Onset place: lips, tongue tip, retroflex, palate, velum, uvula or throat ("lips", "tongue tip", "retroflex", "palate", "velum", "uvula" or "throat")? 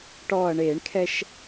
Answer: retroflex